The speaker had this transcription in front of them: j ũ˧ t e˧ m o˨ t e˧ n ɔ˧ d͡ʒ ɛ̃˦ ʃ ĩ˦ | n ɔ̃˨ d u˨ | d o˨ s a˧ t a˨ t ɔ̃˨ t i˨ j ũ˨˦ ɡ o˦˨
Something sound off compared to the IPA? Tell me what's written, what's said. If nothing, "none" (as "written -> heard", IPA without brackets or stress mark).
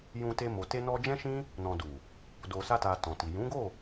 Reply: none